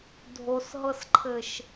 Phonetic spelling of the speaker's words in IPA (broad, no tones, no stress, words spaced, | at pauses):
dʱosɦɤsǃʰɘʃ